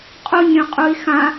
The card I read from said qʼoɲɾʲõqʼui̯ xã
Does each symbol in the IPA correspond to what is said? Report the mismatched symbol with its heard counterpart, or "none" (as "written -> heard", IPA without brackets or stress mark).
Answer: none